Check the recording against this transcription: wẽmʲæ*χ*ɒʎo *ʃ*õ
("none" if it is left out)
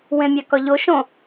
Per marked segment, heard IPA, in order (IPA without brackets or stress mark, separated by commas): k, ʃ